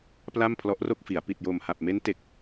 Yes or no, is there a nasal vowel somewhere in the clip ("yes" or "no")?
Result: no